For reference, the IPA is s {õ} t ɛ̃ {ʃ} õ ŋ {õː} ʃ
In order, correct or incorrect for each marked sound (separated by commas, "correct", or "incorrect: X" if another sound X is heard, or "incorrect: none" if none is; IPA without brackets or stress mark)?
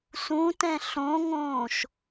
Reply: incorrect: ũ, incorrect: ɬ, correct